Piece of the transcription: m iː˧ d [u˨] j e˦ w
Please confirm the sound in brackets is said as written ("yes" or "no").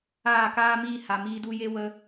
no